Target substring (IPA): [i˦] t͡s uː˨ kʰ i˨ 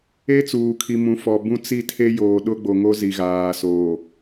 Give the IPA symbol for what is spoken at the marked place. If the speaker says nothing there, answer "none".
e˦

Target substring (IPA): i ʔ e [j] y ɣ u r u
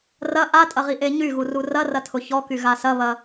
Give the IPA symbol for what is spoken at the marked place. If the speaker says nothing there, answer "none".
ɲ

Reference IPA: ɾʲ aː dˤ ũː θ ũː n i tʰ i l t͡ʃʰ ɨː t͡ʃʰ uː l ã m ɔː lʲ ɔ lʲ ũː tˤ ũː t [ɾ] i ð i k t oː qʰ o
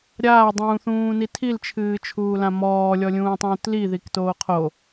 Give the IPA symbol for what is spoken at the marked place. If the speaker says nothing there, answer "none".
l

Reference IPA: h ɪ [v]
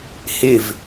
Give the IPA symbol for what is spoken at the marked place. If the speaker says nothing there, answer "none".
v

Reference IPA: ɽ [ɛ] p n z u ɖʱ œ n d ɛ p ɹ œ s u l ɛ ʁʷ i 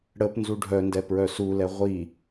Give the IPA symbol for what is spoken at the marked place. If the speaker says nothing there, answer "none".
ə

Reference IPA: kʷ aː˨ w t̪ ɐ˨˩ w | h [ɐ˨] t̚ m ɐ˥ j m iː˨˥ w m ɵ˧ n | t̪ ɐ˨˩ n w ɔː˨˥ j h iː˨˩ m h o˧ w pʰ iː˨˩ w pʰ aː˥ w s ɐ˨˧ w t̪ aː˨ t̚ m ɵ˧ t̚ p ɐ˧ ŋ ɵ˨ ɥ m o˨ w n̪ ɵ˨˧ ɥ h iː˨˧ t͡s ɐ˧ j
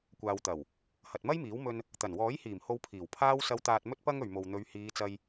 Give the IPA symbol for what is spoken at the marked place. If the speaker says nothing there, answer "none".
ɐ˨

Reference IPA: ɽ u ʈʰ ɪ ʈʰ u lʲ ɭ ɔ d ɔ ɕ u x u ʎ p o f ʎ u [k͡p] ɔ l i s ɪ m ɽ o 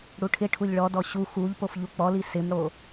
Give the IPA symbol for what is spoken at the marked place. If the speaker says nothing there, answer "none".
k͡p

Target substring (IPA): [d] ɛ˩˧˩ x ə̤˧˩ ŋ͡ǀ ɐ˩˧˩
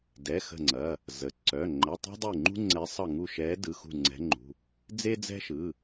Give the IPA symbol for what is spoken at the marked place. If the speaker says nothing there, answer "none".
d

